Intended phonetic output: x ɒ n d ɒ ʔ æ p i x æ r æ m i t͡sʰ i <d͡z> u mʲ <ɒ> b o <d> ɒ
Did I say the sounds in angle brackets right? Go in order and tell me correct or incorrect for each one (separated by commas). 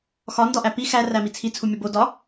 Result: incorrect, correct, correct